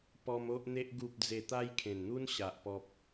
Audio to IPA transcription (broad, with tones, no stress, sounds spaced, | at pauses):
p ɔ˧ m o˦ ʔ n̪ e˦ ʔ ɡ u˨ p̚ d͡z e˨˩ t̪ a˧ j kʰ ẽ˨˩ n n̪ u˦ n ɕ a˨ ʔ p ɔ˦ p̚